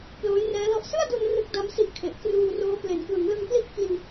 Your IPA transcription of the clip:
p l oː˦˥ j r ɛː˦˥ l ɔ˥˩ ʔ s ɯ˥˩ a̯ d u˧ n r ɯ˦˥ k̚ d a˦˥ m s i˦˥ ʔ kʰ e˨˩ ʔ k r uː˧ r oː˦˥ p l e˩˦ n k w ɯ˩˦ ŋ l ɯ˧ ŋ p l i˥˩ ʔ k i˧ n

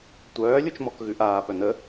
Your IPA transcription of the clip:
tʷ œː lʲ u t͡ʃ m ɔ k ɣ ʉ ʔ aː p œ n̪ ə

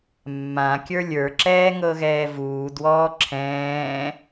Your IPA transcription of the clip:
mː ã kʲ ə˞ lʲ ə˞ ǁ ɛː ŋ ɤ ɣ ɛː v uː d w ɔː ǁʰ ɛ̃ː

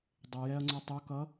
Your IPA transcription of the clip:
dˤ ɪ j ɛ ɐ̯ ŋ͡ǀ ʊ tˤ u k ʌ

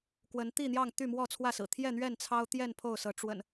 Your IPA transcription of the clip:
k w ə˨˦ n t̪ i˥˨ n̪ j ɑ˥˨ ŋ t̪ y˥˨ m w ɔ˥˨ t͡sʰ w ä˥˨ s ɹ̩˨˩ t̪ʰ j ɛ˥˨ n̪ ɥ ɛ˥˨ n t͡sʰ ɑ˦ ʊ̯ t̪ j ɛ˥˨ n pʰ o˥˨ ʊ̯ s ɤ˨˦ ʈ͡ʂ w ə̰˨˩ n

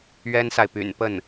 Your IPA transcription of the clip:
ɥ ɛ˥ n s a˨ ɪ̯ p y̰˨˩ n p ə˥˩ n

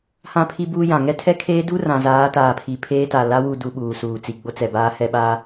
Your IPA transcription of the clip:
h ã˦ pʰ i˦ b uː˦ j ã˨ ŋ ɛ˦ tʰ ɛ˦ kʰ eː˦ d u˦ r ã˨ z aː˨˦ t aː˨ pʰ i˨ pʰ eː˦ t a˨ l a˦ w u˦˨ d u˨ ɓ uː˨ s uː˨ t͡s i˨ ɡ͡b o˦ t͡s ɛ˨ b aː˦ h ɛ˦ ɓ a˦

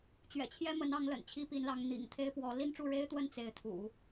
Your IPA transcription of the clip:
t͡ɕ ɥ ɛ̰˨˩ t͡ɕʰ j ɛ˥ m ə˧˥ n ɑ˧˥ ŋ l ə̰˨˩ n t͡ɕʰ i˥ p i˧˥ n l ɑ˧˥ ŋ n̪ ḭ˨˩ ŋ t̪ʰ e˥ ɪ̯ p w ɔ˧˥ l i˥˧ n ʈ͡ʂ u˥˩ ɻ e˥ ɪ̯ t̪ w ə˥˧ n t͡s e˥˩ ɪ̯ t̪ʰ ṵ˨˩˦

